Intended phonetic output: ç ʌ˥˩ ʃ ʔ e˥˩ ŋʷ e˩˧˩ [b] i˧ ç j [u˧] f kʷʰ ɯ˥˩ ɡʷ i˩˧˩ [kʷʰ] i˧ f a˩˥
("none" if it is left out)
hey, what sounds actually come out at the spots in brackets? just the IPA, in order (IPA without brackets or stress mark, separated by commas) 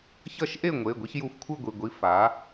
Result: ɡʷ, u˧, ɡʷ